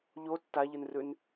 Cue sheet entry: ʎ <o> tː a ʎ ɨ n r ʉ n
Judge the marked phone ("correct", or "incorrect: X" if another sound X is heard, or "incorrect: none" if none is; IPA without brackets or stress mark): correct